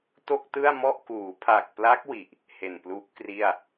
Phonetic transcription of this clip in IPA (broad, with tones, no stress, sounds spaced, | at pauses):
t o˥˩ k̚ t ɯ˥˩ a̯ m ɔ˥˩ ʔ k uː˩˦ pʰ a˨˩ k̚ p l a˦˥ k̚ w i˨˩ ʔ | h e˨˩ n p l u˦˥ ʔ k r i˥˩ a̯